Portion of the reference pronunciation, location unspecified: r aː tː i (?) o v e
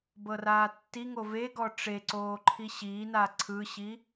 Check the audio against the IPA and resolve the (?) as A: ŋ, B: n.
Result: A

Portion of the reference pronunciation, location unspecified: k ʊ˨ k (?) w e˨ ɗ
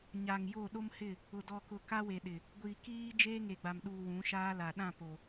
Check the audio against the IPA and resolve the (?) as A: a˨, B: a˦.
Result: B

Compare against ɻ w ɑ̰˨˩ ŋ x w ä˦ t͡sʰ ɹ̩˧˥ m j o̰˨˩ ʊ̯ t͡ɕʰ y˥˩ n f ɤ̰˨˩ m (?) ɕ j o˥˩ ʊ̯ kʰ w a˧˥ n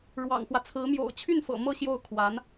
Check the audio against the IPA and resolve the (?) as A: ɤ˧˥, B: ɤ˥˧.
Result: B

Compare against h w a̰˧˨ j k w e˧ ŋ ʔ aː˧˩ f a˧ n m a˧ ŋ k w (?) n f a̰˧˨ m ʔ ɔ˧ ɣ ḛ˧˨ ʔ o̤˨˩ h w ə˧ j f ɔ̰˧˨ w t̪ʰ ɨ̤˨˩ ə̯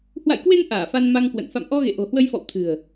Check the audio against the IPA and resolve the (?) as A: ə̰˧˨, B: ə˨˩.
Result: A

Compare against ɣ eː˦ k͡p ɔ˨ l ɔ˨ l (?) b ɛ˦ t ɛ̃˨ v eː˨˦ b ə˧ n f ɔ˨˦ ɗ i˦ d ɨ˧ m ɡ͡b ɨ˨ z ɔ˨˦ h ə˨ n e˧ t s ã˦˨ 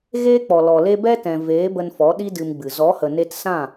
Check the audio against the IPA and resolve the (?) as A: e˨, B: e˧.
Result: B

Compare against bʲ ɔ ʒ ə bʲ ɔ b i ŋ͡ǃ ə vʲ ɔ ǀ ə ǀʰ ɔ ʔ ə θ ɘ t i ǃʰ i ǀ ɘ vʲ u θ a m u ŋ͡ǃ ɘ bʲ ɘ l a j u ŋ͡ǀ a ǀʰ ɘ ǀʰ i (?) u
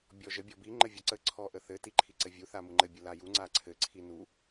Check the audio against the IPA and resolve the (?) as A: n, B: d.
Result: A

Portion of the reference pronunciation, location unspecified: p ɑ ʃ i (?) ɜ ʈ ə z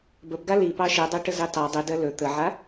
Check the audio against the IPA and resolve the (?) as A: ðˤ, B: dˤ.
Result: B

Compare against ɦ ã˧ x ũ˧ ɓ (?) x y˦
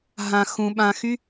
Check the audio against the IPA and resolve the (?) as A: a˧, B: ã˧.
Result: B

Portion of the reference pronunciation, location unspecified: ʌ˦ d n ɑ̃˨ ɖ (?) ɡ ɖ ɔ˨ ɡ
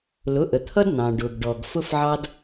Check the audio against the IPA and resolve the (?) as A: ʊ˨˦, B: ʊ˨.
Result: B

